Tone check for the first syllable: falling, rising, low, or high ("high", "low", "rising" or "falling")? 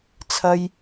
high